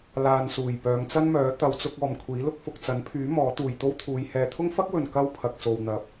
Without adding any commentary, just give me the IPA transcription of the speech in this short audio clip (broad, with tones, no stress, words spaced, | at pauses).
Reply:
laː˨nsuː˨˩j pœː˨˧ŋt͡sɐ˥nmœː˨˥ t̪ɐ˨˧wt͡sʊ˧k̚ ɔː˨mkʷʰiː˨˥lʊ˥k̚ fʊ˨k̚t͡sɐ˨˥npʰyː˨˥ mɔː˨˥t̪uː˨j t̪o˥wt̪ʰuː˨˧j hɛː˧ t̪ʰʊ˥ŋfɐ˥k̚wɵ˨n kɐ˥wpʰɐ˨k̚so˨wn̪ɐ˨p̚